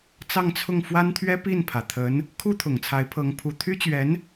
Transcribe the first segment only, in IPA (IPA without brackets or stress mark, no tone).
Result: t͡s